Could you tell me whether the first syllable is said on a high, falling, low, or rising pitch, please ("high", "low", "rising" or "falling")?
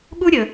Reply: high